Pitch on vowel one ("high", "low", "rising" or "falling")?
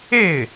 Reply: falling